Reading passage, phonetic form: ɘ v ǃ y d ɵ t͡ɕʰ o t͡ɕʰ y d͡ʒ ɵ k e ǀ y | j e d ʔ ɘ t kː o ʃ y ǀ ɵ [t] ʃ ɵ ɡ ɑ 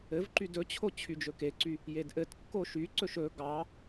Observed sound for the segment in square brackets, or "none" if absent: none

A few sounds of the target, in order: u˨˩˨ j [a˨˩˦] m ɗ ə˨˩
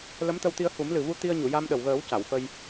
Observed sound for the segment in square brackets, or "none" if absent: a˧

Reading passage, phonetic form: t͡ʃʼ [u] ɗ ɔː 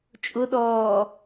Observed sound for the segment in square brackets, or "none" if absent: ʊ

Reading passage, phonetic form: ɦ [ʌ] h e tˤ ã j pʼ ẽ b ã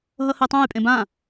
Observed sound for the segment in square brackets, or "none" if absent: ʌ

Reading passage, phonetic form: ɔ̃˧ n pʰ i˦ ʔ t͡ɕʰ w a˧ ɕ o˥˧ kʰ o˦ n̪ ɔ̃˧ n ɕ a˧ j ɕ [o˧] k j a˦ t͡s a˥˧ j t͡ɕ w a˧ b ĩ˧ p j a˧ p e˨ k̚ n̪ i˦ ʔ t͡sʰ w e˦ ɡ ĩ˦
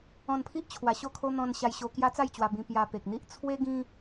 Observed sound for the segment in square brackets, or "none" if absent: o˧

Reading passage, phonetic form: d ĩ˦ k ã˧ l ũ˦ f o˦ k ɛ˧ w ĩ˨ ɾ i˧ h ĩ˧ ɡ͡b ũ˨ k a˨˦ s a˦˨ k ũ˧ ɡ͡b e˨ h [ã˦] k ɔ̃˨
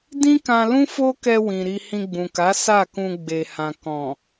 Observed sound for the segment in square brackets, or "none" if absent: ã˨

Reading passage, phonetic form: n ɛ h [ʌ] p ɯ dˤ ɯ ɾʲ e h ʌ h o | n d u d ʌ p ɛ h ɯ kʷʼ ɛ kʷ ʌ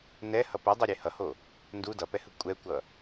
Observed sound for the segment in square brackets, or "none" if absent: ʌ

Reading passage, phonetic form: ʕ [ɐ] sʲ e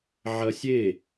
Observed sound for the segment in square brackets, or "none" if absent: ɐ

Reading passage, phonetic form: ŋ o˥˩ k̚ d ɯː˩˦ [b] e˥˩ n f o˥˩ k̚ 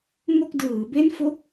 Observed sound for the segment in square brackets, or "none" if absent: b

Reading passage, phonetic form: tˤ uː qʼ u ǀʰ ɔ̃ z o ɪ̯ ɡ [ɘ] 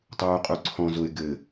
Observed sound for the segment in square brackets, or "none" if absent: ɘ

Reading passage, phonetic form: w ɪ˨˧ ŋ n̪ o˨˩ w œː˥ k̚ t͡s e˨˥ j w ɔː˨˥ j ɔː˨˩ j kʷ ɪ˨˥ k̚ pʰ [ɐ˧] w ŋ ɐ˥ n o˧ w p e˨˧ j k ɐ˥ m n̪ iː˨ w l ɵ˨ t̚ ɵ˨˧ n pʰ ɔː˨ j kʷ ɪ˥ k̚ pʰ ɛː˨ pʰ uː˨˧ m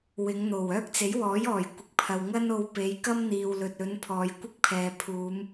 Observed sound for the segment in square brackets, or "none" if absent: ɐ˨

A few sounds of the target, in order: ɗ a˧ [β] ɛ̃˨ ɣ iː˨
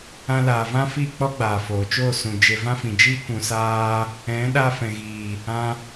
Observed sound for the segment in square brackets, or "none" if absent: f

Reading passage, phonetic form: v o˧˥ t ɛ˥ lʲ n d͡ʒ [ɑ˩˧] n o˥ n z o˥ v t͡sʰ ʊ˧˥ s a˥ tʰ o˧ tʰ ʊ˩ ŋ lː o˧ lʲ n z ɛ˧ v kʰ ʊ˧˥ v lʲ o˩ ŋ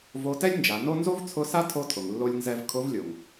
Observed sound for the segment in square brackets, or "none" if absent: a˩˧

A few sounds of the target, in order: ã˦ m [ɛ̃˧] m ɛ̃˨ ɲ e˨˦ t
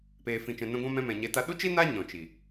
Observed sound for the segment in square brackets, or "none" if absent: ɛ̃˧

